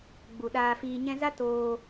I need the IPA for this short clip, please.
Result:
ɡ͡b u˨ ɗ aː˧ f iː˧ ɲ ɛ̃˧ z a˦ t oː˧

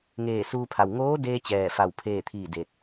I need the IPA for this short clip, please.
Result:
ŋ eː˧˩ s uː˧ pʰ a˩ w ŋ oː˧˥ d eː˧ t͡ɕ ɛː˥˨ f a˥˨ w pʰ eː˥˨ t̪ʰ iː˥˨ d eː˧ t̚

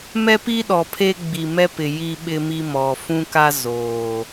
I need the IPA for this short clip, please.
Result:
m ɛ˦ p i˦ ɗ ɔ˨ pʰ e˦ ɡ͡b i˨ m ɛ˦ p ɪ˨ j i˦ ɓ ɪ˦ m i˦ m ɔ˨ f ũ˦ k a˦ z oː˨

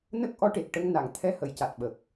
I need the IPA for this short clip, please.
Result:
n ə˦˥ k̚ ʔ ɔ˧˥ ʈ e˨˩ k̚ ʈ ə˧ ŋ n a˨˩˨ ŋ t̪ʰ ɛ˧ h ə˨˩˨ j c a˨˩ t̚ ɓ ə˨˩ k̚

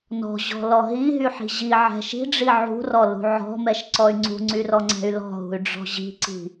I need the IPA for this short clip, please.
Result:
n ɔ̤ ʑ ɔ̤ l ɔ ɦ i ɦ y ħ i̤ ʑ i ʕ ɛ̤ ʃ i̤ ɖ͡ʐ i ʕ ṳ r ɔ l ṳ ʕ ɔ̤ m ɛ ʃ ǀ ɔ y̯ ŋ͡ǀ ṳ ŋ͡ǀ y r ɔ ŋ͡ǀ ɛ̤ y̯ l ɔ̤ ɦ ṳ y̯ ɖ͡ʐ ɔ̤ ʑ i̤ ǀ i̤

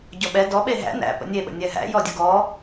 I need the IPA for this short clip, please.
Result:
ɟ ɔ ɓ ɛ d ɔ ɓ e ɦ æ̰ n æ̰ p ə̰ nʲ e ɓ ə̰ nʲ ɛ ɦ æ̰ j ɔ dʲ ə ɡ ɔ

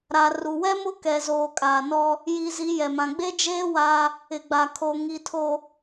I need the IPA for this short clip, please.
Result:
ɾ a˨ r u˨ w ɛ˦ m ʊ˦ k ɛ˨ z oː˨ kʼ aː˨ n ɔ˦ | j i˨ z i˨˦ j ɛ˨ m ã˨ ɡ͡b e˦ d͡ʒ eː˦ w a˦ | ɪ˨ ɡ͡b a˨ kʰ o˨ ŋ i˨ tʰ o˨

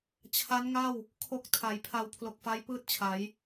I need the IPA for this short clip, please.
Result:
t͡ɕʰ a˦˥ n ŋ a˥˩ w | kʰ o˨˩ k̚ tʰ a˩˦ j pʰ a˧ w pʰ l o˨˩ k̚ f a˦˥ j p ɯː˥˩ t̚ t͡ɕʰ a˩˦ j

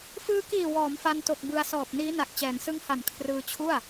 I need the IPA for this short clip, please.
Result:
f ɯː˧ k iː˨˩ w ɔː˩˦ m f a˧ n t o˨˩ k̚ b ɯ˧ a̯ s ɔː˨˩ p̚ n iː˦˥ n a˨˩ k̚ t͡ɕ ɛː˩˦ n s ɯ˦˥ ŋ h a˨˩ n kʰ r ɯː˧ t͡ɕʰ u˥˩ a̯

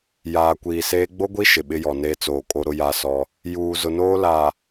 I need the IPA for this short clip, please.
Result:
j aː˨ kʷ iː˨ s eː˦ ɡ͡b o˦ ɡʷ i˦ ʃ ɪ˨ ɓ ɪ˦ j ɔ˨ n eː˦ t͡s oː˨ kʼ o˦ ɾ ʊ˦ j a˦ s ɔ˦ | j uː˨ z ʊ˨ n oː˦ l aː˨

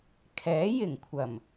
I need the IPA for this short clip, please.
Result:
kʰ ɛː˨˥ j ɪ˨˩ ŋ kʷʰ ɐ˨˩ m

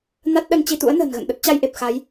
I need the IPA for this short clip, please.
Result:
n a˦˥ t̚ ɗ ə˧ n t͡ɕ i˧ t̪ ṵ˧˥ ə̯ n ə̤ː˨˩ n ɣ ə̰˧˨ n ɗ ə˦˥ t̚ t͡ɕ a˧ j ʔ e˨˩ p̚ x a˨˦ j

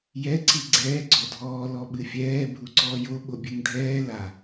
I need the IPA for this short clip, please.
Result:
j ɛ ǀ i ɡ͡ǀ ɛː ɡ͡ǀ ɔ dʱ ɔː l ɔ ɓ ɨ fʲ ɛː bʱ u ǀ ɔː j o ɓ o bʲ ɘ ŋ dʱ ɛː l a

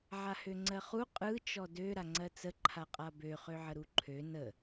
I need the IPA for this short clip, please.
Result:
ʕ a h ø ŋ͡ǀ ɜ χ u qʼ ɯ t͡ʃ ɔ d ø ɾ a ŋ͡ǀ ɜ t͡s ə ǃʰ a qʼ a b ø χ ø ʕ ə ɾ u ǃʰ ø n ə

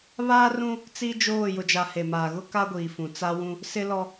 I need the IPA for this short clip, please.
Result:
β aː˦ r ũ˦ | t͡s i˦ d͡ʒ oː˦˨ j ʊ˨ d͡ʒ a˨ h e˨ m aː˨ ɣ ʊ˦ k a˦ ɡʷ iː˨ f ũ˨ t͡s a˦ w ũ˦ | s ɪ˦ l ɔ˦

